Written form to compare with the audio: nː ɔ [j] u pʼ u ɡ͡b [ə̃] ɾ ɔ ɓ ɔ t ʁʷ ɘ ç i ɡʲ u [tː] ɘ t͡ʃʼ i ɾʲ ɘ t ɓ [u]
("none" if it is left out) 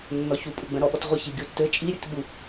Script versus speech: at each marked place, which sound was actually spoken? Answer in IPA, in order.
ç, ə̃, tː, u

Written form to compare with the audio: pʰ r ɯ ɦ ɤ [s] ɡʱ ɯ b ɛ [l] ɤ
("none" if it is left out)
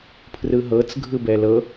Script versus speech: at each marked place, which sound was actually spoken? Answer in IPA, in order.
t͡s, l

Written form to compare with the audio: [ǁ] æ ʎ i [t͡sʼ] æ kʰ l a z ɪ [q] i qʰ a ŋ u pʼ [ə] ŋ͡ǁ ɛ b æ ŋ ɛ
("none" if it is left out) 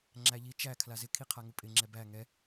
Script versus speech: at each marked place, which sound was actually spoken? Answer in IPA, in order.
ŋ͡ǁ, t͡ʃ, kʰ, ɪ

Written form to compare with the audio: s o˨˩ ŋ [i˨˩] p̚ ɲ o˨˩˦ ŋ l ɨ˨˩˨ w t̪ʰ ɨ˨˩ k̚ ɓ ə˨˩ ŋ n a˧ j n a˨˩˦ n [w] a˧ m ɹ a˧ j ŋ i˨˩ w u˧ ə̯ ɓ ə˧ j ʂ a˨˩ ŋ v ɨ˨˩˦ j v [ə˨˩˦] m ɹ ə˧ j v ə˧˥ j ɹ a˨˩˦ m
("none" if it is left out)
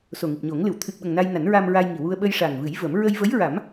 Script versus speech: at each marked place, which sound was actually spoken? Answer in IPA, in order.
i˨˩, ɹ, ə˨˩˦

